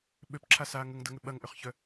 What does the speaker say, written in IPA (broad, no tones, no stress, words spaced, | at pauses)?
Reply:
ɓøpǁʰasaː ŋəŋdɐŋʏ ɓɐŋʔʏχçœ